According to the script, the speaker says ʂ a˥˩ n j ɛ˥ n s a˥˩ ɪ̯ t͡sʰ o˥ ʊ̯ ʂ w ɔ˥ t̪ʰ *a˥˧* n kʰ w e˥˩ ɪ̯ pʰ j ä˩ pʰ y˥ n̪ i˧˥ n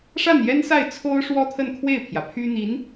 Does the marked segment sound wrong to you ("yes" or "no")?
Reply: yes